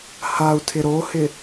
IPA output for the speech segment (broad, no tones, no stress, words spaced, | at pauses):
hau̯tʰɪ ɾohɪ